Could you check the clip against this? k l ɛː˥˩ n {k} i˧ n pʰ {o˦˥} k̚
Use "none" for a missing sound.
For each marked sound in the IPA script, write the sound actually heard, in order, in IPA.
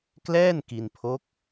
k, o˦˥

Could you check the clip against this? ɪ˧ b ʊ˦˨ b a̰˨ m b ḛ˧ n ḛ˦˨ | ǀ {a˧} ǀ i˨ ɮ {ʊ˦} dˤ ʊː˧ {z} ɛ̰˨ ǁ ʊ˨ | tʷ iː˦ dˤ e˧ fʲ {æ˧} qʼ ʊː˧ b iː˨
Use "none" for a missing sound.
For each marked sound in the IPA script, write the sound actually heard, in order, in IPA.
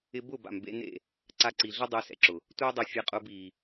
a˧, ʊ˦, s, a˧

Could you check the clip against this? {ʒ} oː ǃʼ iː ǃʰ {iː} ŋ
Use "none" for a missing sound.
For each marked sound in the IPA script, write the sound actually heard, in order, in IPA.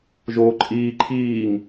ʒ, iː

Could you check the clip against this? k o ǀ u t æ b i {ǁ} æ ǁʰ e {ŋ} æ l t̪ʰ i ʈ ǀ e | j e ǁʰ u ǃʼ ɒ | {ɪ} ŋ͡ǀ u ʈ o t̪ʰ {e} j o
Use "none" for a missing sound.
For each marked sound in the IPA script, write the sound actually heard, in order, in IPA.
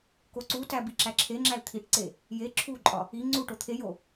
ǁ, ŋ͡ǁ, i, e

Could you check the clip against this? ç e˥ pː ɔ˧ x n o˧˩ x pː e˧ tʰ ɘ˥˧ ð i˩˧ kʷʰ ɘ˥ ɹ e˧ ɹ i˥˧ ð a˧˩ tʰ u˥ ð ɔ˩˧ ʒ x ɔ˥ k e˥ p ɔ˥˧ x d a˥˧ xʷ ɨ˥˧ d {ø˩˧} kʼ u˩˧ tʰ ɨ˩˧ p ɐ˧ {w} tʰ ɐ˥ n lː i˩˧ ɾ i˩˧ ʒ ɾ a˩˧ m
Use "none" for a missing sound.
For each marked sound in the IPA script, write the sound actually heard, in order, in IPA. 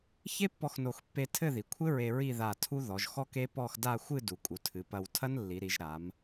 u˩˧, w

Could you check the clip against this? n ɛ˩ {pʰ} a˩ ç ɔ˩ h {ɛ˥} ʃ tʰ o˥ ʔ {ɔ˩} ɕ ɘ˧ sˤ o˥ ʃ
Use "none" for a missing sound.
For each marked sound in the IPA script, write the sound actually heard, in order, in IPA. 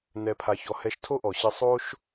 pʰ, ɛ˧, ɔ˩

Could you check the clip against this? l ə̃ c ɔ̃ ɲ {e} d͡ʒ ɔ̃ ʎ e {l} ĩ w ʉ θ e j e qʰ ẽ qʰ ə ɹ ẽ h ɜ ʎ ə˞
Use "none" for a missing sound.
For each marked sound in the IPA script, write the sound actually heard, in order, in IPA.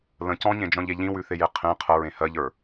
ẽ, ʎ

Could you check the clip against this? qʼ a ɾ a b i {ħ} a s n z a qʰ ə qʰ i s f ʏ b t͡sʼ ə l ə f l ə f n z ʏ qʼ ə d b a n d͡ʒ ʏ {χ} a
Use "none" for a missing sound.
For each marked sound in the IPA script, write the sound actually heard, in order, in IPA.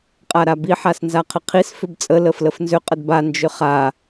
ħ, χ

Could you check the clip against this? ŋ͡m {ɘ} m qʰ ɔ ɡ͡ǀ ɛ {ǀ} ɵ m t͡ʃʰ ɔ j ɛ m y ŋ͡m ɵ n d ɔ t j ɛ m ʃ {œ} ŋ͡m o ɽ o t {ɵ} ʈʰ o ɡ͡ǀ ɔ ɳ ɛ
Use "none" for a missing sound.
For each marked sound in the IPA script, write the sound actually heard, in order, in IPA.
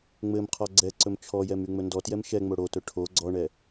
ɘ, ǀ, ɛ, ɵ

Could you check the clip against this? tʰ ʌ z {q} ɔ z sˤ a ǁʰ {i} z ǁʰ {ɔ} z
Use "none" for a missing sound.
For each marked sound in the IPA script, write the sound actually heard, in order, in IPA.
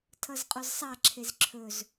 qʼ, e, ɵ

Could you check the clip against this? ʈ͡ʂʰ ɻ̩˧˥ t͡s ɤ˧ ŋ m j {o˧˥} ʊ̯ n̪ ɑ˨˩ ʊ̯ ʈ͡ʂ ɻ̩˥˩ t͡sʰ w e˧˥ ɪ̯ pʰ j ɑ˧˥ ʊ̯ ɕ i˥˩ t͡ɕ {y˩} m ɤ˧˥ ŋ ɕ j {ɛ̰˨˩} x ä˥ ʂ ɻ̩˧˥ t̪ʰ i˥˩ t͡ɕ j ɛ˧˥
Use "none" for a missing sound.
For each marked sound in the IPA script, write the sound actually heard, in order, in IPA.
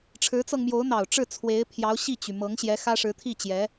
o˧˥, y˩, ɛ˧˥

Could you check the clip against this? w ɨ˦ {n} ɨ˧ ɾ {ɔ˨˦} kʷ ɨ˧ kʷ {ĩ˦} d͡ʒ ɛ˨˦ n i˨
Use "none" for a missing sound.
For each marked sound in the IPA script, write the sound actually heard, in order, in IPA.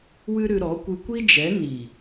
ɾ, ɔ˨˦, i˦

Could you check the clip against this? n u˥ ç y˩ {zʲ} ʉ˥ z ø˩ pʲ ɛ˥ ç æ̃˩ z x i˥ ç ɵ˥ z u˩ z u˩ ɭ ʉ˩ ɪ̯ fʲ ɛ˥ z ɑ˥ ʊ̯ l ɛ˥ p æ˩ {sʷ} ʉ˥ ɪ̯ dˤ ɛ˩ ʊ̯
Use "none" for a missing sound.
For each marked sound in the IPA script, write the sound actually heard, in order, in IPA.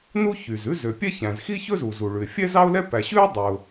z, ɕ

